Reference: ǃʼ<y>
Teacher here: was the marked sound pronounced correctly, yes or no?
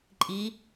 no